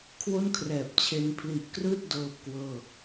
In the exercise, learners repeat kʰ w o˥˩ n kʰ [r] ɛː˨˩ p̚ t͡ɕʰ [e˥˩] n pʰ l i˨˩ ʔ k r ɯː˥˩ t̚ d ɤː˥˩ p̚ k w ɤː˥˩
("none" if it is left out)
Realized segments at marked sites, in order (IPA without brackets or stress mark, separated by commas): r, e˧